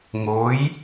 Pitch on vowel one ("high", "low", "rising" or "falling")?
rising